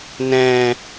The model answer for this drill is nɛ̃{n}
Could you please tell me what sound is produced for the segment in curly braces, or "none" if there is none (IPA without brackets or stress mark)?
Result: none